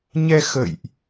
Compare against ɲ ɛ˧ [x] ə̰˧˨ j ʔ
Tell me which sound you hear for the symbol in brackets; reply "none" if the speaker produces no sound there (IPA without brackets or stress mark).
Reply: x